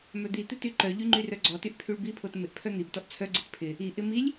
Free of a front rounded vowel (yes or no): no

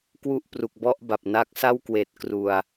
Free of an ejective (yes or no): yes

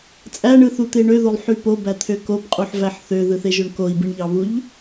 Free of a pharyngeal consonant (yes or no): no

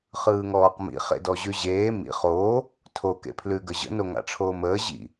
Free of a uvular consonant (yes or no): no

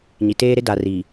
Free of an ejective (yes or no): yes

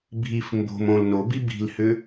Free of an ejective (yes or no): yes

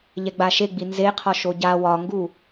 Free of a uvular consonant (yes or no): no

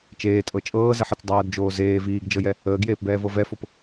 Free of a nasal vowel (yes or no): yes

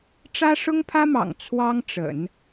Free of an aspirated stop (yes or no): no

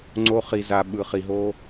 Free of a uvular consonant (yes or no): no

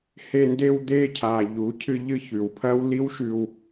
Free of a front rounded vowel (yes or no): yes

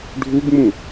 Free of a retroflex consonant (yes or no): no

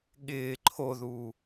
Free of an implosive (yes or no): no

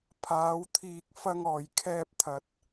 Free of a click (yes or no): yes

